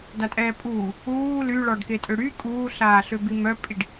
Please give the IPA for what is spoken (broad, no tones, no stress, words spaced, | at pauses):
datʼɛːpʼuː | uː lyɭɔɖke tʼøɽy kʼuːɬaːɬøbi mœpʼiɖ